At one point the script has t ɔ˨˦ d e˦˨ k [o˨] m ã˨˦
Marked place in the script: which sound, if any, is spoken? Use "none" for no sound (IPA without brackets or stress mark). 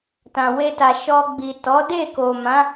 o˨